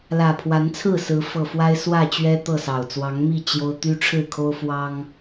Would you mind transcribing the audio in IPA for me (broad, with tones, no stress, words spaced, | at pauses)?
lä˨˩pʰwa˨˦nt͡sʰɹ̩˥˨sɹ̩˨˦ fɤ˨˩fwa˦ɪ̯swä˥˨t͡ɕɥɛ˦ t̪ɤ˥˨sɑ˨˩ʊ̯ t͡swɑ˨˦ŋmi˥˨ t͡ɕjo˦ʊ̯ t̪y˦ʈ͡ʂʰɻ̩˥˨kʰo˦ʊ̯ fwɑ˦ŋ